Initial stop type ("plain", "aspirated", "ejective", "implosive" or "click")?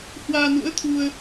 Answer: aspirated